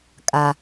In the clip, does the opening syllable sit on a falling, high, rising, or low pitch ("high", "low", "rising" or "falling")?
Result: low